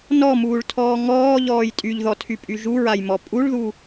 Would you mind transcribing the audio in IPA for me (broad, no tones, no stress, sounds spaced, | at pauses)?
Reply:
n ɔ m uː ɭ tʰ ɔː ŋ ɔː ʎ ɔː j tʼ y ʎ ð ɔ tʰ y pʼ y ʒ u ɹ a j m ɔ pʼ u ɭ ð u